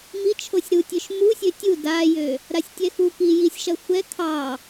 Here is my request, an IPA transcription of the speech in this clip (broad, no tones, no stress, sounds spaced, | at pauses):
m i t͡ʃʰ o sʲ ɾ u tʲ ø ʃ m u sʲ ø tʲ u d a j ø | ɾ a sʲ tʲ ɛ x u k i j i sʲ ʃ ɐ xʷ ɛ kʰ ɑ